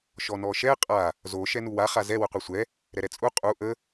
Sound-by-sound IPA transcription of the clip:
ʃɔnɔʃɛ qʼa | zo ʃɛnuwa χazɛ wəqʷɛsʷɛ | ɾɛɾɛt͡sʼu qʼu ʔə

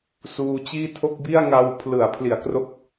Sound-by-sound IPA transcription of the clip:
suː˧t͡ɕiː˥˩ tʰo˥˩k̚bi˥˩a̯ŋa˧w pʰlɯ˩˦a̯pʰli˩˦a̯ kro˦˥k̚

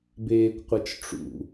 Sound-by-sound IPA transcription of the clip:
beːkʷqʷɤt͡ʃʈ͡ʂṵ

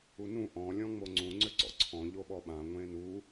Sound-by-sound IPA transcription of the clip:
unũ ʔɔ̃ lʲɔ̃ŋ͡moŋ͡ǀũ ŋ͡ǀʏǀɔ̰ǀʰɔ̃ ʎoɓɔɓã ŋʷẽnu

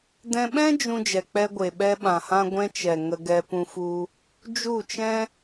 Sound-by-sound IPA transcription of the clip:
dɛ̃˧ɓɛ̃˦ d͡ʒũ˧ d͡ʒɛ˨k͡pɛ˧ɡʷe˨ ɓɛ˧ɓã˨hã˧ ɡʷɛ̃˧t͡ʃɛ˨ ŋə˧ɡɛ˧pũ˧fu˧ | d͡ʒu˦˨t͡ʃɛ̃˦

